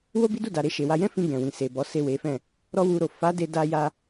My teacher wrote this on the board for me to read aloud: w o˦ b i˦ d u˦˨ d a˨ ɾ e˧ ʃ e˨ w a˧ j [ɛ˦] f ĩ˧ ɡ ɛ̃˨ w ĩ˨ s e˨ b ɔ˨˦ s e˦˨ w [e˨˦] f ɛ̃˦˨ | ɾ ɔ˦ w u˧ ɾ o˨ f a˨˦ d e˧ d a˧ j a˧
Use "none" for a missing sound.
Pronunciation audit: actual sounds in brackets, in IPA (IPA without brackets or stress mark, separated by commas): ɛ̃˦, e˨˦